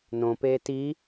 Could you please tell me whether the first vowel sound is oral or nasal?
nasal